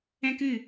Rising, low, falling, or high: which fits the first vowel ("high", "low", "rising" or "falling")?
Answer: high